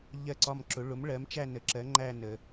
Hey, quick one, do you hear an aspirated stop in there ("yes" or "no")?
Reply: no